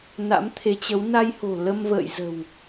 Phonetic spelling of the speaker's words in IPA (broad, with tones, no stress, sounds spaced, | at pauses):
n a̰˧˥ m t̪ʰ e˨˦ t͡ɕ ə˨˦ w n a˧ j h o̤˨˩ l ə˧ m v ə̰ː˧˨ j z ə̤˨˩ w